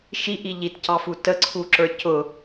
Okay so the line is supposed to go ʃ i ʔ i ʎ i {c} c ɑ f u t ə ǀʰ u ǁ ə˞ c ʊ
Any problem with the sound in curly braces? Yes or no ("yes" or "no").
yes